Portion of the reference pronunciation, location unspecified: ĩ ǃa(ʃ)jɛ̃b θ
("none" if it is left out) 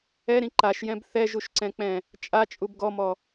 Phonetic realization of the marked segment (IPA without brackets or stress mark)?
ʃ